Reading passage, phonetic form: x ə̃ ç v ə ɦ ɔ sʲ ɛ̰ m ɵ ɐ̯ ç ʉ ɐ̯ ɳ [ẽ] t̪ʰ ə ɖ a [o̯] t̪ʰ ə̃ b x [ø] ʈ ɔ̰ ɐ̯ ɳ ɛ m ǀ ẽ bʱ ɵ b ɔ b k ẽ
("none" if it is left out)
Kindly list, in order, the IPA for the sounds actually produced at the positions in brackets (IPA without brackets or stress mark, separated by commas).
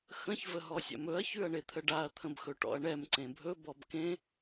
e, ɐ̯, ɵ